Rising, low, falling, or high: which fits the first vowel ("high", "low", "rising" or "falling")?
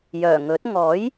low